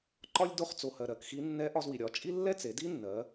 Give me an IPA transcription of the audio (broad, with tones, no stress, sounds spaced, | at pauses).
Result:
ǃ ɒ˥ lʲ d o˧˥ χ t͡s o˩ h ɜ˩ ɾ ɜ˩˧ k x i˧˥ nː ɛ˧˥ ʔ ɒ˧ z w i˩ ɾʲ ɒ˩˧ t͡ʃʼ i˥ lː ɛ˥ t͡s e˩˧ d i˥ nː ɜ˩˧